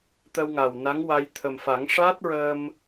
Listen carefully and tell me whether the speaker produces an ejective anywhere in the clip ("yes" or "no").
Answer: no